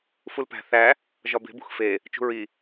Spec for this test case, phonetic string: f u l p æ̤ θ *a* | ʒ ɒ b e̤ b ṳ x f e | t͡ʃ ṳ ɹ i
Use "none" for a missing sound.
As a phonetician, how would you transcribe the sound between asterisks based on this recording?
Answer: æ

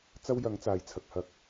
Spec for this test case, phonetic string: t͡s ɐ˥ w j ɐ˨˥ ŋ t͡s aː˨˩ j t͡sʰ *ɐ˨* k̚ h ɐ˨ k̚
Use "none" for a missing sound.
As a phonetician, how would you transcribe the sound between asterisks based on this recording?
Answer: ɐ˨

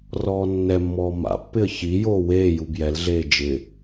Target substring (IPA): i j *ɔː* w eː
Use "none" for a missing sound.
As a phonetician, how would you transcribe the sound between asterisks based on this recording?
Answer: oː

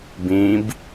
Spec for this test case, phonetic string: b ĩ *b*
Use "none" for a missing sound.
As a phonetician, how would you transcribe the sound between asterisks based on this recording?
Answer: b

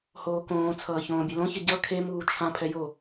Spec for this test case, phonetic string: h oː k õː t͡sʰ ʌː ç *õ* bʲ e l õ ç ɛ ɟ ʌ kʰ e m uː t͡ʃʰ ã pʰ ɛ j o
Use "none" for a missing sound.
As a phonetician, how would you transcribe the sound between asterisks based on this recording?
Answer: õː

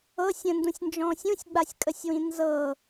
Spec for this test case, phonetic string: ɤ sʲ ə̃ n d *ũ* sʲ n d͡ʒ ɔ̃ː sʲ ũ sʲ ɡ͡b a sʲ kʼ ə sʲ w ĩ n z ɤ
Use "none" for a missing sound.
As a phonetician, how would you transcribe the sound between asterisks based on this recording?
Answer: ũ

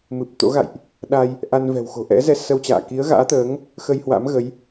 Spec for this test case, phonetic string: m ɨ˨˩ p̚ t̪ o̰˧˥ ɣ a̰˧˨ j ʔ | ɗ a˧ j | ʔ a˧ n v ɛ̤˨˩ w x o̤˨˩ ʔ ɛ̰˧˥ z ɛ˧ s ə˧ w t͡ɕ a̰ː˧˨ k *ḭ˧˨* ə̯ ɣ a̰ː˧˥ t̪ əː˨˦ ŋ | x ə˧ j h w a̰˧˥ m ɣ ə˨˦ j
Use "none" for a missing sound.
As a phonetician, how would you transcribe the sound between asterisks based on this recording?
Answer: i˨˦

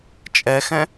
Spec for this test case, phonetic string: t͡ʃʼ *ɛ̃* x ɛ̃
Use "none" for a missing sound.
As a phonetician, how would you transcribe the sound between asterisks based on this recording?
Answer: ɛ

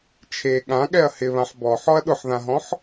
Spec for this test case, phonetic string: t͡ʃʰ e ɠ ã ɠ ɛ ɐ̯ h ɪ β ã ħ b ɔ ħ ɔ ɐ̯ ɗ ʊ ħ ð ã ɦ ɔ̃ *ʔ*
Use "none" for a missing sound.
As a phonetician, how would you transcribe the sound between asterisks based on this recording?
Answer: ħ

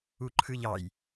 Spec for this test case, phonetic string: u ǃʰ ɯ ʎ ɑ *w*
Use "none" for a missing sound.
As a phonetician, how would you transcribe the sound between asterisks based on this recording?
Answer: j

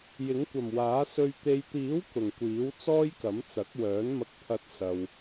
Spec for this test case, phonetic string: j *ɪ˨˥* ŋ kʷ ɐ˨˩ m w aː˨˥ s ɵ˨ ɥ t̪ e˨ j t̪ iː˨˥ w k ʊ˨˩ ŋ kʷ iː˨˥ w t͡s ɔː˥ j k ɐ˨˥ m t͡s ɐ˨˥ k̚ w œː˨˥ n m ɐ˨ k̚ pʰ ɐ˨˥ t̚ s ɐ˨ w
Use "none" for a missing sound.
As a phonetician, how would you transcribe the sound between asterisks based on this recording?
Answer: ɪ˨˥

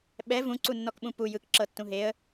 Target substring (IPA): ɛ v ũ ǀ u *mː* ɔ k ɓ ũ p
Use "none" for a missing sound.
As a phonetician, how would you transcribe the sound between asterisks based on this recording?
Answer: nː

